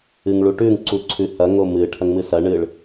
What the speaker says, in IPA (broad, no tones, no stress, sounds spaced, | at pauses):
ɨ ŋ ɭ u ʈ ʉ ŋ ǀ u ǀʰ ʉ h ɐ ŋ o m ɨ ʈʰ ɐ ŋ m ɨ s ɐ ɳ ɨ ɭ